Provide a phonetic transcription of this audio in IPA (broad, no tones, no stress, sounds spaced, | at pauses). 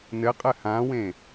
n ɘ qʼ ɘ h ã w ẽ